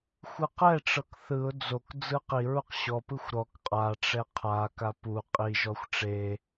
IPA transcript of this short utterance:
xʷ ɯ q ɛ ʈ͡ʂ ɤ k θ ɯ ʊ̯ d͡z o k d͡z ɯ q i ɹ u q ɕ ɔ p ɯ xʷ ɾ ɔ k qʼ a ʈ͡ʂ ɛ qʰ a k a p u qʼ i ʒ ɔ xʷ ʈ͡ʂ e

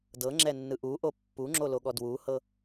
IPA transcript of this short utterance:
d ɤ ŋ͡ǁ ɛ nː ɯ ʔ u ʔ o pː u ŋ͡ǁ o l o ɠ ɔ d w u h ɤ

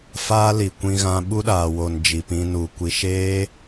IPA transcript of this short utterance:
f aː˦ l i˨ kʷ ĩ˧ ɣ ã˧ ɓ u˦ ɗ aː˨ w o˨ n d͡ʒ i˨ p ĩ˧ n u˨ kʷ i˨ ʃ eː˦

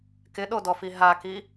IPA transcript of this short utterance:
k ɪ ɗ o d ɔ f i ɦ a k i

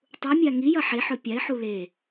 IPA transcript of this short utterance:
tˤ u mʲ a ŋ i j ɐ ħ e ħ ɵ pʲ a ɪ̯ ħ u l e

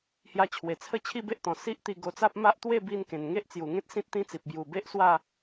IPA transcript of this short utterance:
h j a˧ t͡ɕʰ w e˨˩ t͡sʰ ə˥˧ t͡ɕʰ i˥˧ b e˦ ʔ t̪ ɔ̃˨˩ s i˦ ʔ t̪ i˧ ɡ o˧ t͡s a˦ p̚ m a˦ ʔ t̪ w e˥˧ b i˧ n k ẽ˨˩ n ŋ e˦ ʔ t͡s j u˨˩ ŋ ẽ˦ t̚ s ĩ˦ t̚ t̪ ĩ˦ t͡s i˨ p̚ b j u˨˩ b e˦ ʔ s w a˥˧

